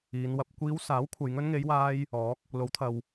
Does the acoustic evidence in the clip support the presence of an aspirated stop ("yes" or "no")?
yes